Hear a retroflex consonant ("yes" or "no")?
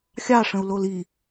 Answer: yes